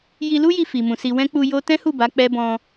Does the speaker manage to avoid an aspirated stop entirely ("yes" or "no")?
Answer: yes